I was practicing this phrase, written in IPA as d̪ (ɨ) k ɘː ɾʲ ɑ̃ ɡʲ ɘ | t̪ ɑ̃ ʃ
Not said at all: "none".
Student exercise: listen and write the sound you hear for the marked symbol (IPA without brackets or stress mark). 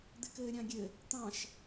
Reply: ɪ